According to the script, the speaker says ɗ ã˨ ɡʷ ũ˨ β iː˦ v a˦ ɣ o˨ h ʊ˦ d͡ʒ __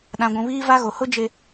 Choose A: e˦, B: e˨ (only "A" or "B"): B